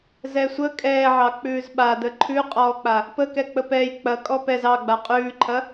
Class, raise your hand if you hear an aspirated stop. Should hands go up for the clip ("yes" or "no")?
yes